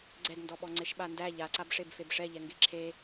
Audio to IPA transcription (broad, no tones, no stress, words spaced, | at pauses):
ɡ͡ǀɛdndɔɓɔ ŋ͡ǀeʃɓandæ ʎaǀabʂeb febʂɛʎɛ ŋɡeǁʰe